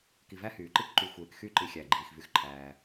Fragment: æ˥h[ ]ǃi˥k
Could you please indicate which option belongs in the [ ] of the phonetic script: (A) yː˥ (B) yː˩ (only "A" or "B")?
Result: B